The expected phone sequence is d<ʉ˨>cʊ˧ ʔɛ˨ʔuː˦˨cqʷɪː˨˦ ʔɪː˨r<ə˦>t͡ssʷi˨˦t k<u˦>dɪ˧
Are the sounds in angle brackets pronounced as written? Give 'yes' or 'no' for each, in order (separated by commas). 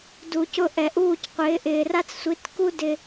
no, no, yes